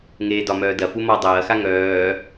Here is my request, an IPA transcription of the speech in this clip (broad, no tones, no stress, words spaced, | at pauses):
ŋeːdɒmœː dɐfu mɒ dˤɐːxa ŋœː